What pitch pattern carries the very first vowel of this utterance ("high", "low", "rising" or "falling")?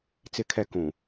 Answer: low